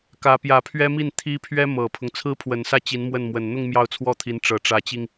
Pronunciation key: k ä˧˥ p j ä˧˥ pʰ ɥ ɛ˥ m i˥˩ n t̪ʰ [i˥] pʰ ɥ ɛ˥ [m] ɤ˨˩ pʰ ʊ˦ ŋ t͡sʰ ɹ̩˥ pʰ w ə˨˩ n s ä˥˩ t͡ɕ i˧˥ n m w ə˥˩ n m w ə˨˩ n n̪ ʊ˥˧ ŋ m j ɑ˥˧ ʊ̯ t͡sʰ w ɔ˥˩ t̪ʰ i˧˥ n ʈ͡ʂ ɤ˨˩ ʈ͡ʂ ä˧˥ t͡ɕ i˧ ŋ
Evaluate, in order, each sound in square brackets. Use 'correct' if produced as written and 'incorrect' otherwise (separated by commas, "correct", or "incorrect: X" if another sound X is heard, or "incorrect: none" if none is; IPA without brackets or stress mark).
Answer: correct, correct